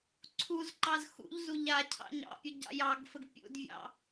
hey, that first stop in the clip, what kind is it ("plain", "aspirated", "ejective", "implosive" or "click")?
click